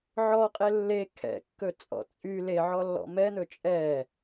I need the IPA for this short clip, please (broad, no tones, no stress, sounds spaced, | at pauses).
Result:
ʕ ɔ qʼ e lː e kʰ ɛ̰ kː ɵ t͡sʼ ɔ̰ t͡sʼ y l e ʕ ɔ lː ɔ̰ m ɛ n̪ ɵ t͡ʃʼ ɛ